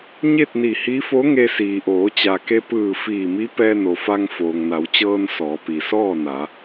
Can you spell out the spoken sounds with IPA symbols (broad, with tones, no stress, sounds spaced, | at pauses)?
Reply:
ɲ e˥˨ t̚ n i˧˩ h i˧˥ f o˧˥ ŋ e˧ s iː˩ ʔ oː˩˧ t͡ɕ a˩ k e˧ p ɯː˧˩ f iː˧˩ m i˧˥ p ɛː˧ n o˩ f a˧ ŋ f oː˩ ŋ n a˩˧ w t͡ɕ ɤː˧ n s ɔː˩˧ p i˩ s ɔː˥˨ n a˩˧